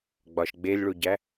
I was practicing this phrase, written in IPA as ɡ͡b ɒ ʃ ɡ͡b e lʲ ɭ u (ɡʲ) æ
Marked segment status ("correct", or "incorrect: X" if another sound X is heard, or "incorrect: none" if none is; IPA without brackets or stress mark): incorrect: ɟ